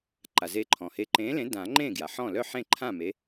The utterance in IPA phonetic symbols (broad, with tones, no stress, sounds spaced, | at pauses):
ǃ a˩ z e˨˥ ǃʰ ɔ̃˩ h e˨˥ ǃ ẽː˨˥ l ẽ˨˥ d ã˨˩˦ ŋ͡ǃ ẽ˥˩ ɡ j a˩ ħ ɔ̃˥˩ l œ˥˩ ħ ẽ˥˩ ǃʰ ã˥˩ m e˨˥